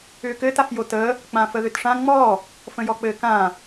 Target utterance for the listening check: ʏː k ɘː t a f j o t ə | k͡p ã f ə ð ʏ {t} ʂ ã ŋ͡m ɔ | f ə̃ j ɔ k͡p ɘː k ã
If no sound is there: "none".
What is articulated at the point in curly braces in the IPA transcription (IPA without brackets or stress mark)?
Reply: t